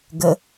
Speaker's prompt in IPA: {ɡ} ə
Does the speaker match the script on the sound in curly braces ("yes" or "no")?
yes